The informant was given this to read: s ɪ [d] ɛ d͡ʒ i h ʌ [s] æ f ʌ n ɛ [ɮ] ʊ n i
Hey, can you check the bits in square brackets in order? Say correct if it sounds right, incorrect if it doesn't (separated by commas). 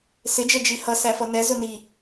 incorrect, correct, incorrect